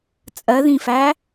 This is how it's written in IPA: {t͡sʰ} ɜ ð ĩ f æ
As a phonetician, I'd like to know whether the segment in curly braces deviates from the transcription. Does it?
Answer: yes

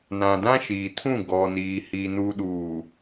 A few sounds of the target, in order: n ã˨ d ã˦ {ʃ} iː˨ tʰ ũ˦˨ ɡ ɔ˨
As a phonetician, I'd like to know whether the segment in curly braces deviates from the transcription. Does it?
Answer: no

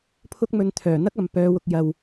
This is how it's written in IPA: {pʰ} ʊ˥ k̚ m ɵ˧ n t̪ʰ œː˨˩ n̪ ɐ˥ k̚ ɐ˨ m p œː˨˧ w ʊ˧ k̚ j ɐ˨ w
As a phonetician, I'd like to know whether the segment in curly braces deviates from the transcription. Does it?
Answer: no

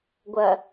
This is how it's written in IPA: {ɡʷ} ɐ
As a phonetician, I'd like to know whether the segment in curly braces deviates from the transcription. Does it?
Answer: no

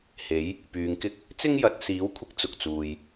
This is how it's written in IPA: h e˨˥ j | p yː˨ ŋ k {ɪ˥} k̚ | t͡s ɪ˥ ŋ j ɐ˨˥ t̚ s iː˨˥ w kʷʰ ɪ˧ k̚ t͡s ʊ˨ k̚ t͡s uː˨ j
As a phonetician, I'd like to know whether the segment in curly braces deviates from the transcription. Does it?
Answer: no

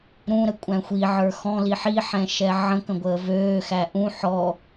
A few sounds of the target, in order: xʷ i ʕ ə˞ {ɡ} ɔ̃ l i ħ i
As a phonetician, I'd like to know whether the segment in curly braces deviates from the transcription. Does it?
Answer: yes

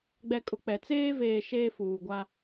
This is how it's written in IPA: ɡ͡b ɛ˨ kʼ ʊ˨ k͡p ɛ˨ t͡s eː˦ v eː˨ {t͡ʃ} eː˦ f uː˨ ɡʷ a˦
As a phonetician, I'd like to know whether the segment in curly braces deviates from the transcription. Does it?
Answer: yes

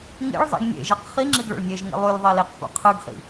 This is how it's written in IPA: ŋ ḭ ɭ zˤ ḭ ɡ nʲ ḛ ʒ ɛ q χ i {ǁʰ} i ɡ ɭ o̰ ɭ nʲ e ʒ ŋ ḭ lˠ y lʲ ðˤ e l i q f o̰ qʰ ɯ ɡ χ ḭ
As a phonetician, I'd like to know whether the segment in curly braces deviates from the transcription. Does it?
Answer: yes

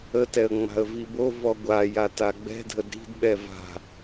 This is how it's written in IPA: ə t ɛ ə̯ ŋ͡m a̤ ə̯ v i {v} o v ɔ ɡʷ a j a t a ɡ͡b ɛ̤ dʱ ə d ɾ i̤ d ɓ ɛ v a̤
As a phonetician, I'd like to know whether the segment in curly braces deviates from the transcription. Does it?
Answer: yes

